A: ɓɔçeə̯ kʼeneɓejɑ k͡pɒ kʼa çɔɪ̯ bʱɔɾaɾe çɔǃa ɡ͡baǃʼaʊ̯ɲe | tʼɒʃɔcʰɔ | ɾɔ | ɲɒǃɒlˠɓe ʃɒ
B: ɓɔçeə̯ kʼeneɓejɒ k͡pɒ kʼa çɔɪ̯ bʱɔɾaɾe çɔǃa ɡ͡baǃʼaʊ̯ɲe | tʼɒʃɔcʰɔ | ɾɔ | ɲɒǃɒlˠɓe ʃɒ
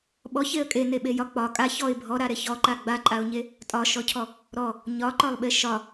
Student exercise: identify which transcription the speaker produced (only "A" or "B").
B